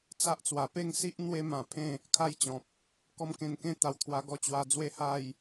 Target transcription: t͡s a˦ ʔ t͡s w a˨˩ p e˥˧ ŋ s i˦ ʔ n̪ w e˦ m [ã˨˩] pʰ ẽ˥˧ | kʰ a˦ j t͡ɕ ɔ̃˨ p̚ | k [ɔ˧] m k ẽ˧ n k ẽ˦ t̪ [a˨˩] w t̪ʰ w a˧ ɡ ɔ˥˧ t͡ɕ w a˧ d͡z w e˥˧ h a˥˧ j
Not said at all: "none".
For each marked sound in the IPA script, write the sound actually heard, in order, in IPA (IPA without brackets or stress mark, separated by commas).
ã˨˩, ɔ˦, a˨˩